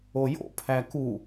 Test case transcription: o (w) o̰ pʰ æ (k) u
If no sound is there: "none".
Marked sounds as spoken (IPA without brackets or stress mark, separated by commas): j, k